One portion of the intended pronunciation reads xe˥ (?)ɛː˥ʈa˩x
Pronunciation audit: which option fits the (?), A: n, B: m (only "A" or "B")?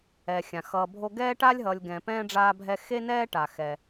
A